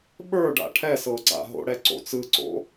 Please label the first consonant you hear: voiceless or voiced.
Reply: voiced